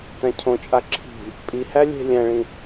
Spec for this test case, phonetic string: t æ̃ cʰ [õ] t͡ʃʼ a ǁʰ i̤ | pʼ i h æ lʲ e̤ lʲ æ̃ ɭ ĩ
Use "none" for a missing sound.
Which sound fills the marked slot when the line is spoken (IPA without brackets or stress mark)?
õ